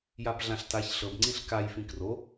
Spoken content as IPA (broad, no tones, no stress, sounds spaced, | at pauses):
j a b ɮ ã ɬ t a ç ɬ ɤ b ŋ͡ǀ ĩ ɬ k a j f ĩ k r o